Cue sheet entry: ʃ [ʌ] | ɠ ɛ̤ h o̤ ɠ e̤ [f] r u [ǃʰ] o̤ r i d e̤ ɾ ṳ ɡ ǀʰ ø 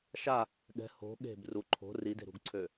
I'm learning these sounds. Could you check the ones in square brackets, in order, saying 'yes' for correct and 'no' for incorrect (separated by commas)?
no, no, yes